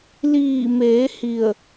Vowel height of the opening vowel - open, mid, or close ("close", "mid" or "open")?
close